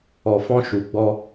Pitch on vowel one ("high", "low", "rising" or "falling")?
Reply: low